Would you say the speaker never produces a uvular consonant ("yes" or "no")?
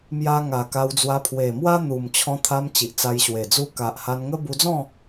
yes